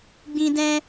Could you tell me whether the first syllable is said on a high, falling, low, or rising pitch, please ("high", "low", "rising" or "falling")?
high